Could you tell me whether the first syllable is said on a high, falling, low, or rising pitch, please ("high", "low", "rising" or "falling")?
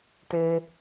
low